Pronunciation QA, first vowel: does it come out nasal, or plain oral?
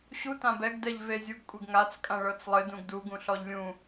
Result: oral